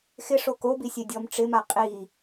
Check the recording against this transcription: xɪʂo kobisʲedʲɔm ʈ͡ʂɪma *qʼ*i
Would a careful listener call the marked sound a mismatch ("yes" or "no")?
no